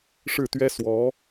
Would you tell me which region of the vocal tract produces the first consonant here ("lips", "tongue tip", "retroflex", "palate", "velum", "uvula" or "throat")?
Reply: retroflex